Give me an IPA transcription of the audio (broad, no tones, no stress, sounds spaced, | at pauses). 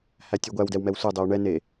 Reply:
h æ tʲ o ɡʷ æ w d ɛ w m ɛ w sʷ ɛ dˤ e w ɳ ɛ n e